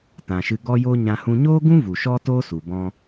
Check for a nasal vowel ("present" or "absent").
present